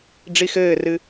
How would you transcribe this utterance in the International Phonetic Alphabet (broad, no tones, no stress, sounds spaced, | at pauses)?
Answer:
ɖ͡ʐ i x ɘː r ɨ